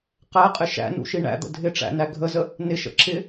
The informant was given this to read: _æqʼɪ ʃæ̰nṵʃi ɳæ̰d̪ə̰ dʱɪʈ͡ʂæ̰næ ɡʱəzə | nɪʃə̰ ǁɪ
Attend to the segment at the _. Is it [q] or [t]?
q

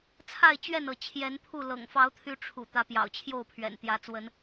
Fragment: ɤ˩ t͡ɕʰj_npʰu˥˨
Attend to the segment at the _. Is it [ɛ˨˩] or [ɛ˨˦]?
ɛ˨˦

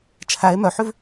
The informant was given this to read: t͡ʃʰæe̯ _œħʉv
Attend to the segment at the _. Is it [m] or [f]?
m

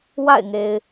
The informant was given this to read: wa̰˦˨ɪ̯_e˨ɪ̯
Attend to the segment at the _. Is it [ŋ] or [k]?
ŋ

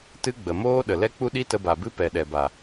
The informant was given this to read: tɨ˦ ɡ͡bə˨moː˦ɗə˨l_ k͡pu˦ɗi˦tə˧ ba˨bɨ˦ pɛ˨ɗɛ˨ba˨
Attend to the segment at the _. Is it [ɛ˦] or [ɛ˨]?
ɛ˦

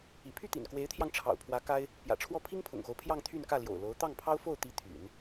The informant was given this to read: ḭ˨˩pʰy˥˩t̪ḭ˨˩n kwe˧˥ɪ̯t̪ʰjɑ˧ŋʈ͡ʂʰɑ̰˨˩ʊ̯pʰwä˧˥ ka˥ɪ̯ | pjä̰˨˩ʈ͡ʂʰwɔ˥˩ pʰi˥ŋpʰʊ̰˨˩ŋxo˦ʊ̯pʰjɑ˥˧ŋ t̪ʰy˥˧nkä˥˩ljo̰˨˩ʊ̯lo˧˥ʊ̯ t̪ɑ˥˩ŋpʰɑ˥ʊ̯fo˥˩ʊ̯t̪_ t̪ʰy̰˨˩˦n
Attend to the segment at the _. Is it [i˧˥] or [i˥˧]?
i˧˥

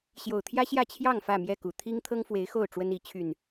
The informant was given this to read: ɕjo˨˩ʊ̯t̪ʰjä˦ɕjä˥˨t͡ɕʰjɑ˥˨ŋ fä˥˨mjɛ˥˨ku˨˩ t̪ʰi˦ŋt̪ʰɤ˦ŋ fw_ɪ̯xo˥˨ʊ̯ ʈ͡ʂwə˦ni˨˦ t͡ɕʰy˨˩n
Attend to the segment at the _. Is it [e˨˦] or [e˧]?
e˨˦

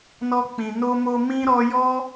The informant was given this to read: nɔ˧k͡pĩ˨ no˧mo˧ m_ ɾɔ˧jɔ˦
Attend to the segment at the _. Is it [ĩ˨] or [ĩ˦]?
ĩ˦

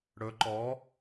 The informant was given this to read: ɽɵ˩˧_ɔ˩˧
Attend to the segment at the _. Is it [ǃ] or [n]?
ǃ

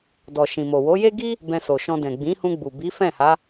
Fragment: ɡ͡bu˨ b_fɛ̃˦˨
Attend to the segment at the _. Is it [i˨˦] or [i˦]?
i˨˦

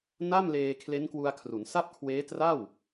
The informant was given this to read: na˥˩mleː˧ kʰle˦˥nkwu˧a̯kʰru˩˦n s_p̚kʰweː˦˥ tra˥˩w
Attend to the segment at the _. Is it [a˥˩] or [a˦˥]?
a˥˩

